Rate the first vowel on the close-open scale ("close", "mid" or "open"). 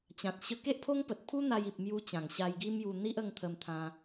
open